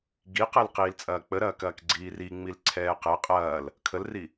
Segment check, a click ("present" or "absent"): present